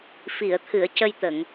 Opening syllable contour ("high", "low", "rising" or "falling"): low